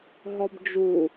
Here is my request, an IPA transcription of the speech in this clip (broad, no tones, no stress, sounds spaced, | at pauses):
ɦ ɔ b d͡ʒ u